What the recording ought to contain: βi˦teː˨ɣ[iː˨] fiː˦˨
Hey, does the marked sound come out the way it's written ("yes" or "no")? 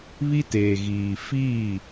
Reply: yes